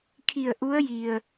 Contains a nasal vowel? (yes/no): no